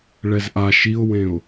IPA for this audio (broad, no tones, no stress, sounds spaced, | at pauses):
ɭ ɛ z ʔ a ʃ i ʊ̯ w ẽ ʊ̯